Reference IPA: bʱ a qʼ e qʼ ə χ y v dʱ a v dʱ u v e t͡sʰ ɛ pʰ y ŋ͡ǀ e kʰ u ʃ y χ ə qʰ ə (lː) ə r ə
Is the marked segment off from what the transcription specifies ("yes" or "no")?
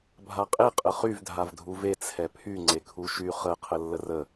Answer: no